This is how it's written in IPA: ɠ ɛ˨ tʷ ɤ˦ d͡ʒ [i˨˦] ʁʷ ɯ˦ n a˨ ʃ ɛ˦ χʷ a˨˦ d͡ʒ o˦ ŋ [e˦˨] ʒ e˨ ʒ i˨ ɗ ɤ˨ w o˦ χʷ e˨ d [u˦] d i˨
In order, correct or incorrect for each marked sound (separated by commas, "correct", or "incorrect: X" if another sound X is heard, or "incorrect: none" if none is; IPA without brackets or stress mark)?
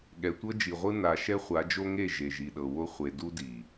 incorrect: i˨, correct, correct